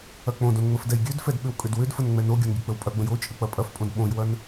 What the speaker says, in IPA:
ɐk͡põdõn ŋ͡məfdɛjɡʲødfɛd ɓʏwkʼʏdwʏdfən ŋ͡mɛnoɡʲɐn ɡʲək͡pəwpʼɐɡ͡bə̃j ot͡ʃʼə k͡pɐpʼɐfpʼõd ɓõjwɐn

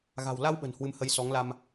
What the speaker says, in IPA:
ɣa̤˨˩wla˧wɓə̤˨˩n hwɨ˧mhə˧j sɔ˨˦ŋ la˧m

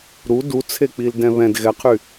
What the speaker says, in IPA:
ɾu dut͡sʰek͡pil dɛ̃βɛ̃d ɣɛqʰy

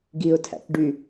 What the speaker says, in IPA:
ɡiʊ̯tʰæ̰k ɖy

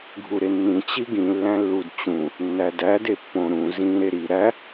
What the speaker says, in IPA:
ɡʱuɾenːĩ t͡ɕiɡĩ lːæ̃lːudt͡ɕũ | nːædæ depːõ ɾũ zĩ ɾeɾi ɾæ

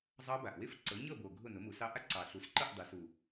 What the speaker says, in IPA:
zˤɑ˦˥ba˨˩ʔ wɪ˦˥fǀɤ˩˥ɲɤ˥˨bo˨˩ ɡʱʊ˥˨nʊ˩˥mu˩˥sɑ˦˥ ʔa˦˥ǀɑ˨˩ɬu˩˥sǃɤ˥˨ʔ dˤɪ˩˥su˨˩

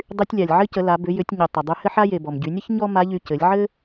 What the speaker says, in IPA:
dˤy˧tʲlʲa˩lʲ ʕɘ˥cə˩˧la˩˧ bʏ˩˧jʏ˩˧tʲɲʏ˩ tˤə˩ dˤy˧hɘ˥ħa˥je˩ bɔ˩mɟy˩˧nʲə˥ç ɲɔ˥ma˧˥ʎy˧ cɘ˩˧lʲʕɘ˥

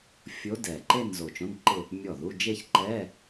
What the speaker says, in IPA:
fʲo˧˥dɛ˨˩ǃe˥˧n zo˨˩t͡ʃõ˧˥˧nǃɪ˥˧ | mʲɔ˥˩ðu˧˥˧ d͡ʒe˥˧çǃɛ˧˥˧

